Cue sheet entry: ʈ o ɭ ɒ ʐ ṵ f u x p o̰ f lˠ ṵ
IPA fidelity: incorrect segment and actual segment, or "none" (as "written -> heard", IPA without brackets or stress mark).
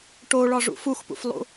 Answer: o̰ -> ṵ